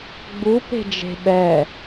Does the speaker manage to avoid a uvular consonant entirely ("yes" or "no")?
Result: yes